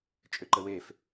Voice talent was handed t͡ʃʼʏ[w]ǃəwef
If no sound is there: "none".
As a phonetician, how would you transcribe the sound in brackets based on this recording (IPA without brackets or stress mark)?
none